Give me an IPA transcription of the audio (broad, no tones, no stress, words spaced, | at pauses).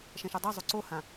ʃɛ̃ʃudˤɜ zˤuǀohã